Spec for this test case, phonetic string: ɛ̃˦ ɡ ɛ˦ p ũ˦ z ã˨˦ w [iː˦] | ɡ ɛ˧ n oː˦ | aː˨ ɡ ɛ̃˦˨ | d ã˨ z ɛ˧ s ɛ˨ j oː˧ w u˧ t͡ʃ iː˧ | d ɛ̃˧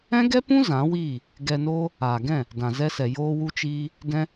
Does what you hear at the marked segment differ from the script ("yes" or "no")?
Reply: yes